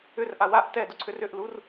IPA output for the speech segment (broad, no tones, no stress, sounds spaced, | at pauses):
ʏ r ʔ a w a ʔ t ɛ d ʊ ǀʰ ʏ r ʏ ʔ l u r